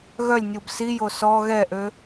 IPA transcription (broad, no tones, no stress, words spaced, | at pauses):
ɣœlʲnʲub sijo sɔ ɣɛʔø